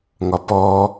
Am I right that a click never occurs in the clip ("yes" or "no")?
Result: yes